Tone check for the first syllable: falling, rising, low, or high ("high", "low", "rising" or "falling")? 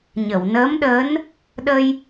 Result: low